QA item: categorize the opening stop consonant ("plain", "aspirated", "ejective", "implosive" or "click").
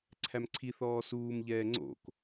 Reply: click